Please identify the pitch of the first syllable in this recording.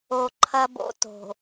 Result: low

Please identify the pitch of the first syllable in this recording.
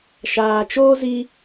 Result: low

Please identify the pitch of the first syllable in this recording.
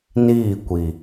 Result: falling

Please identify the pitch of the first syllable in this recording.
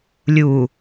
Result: low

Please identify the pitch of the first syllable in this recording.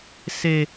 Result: high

